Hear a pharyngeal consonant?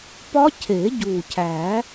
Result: no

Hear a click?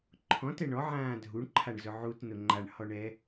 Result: yes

